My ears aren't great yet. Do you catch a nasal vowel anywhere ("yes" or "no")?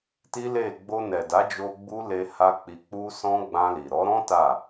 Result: yes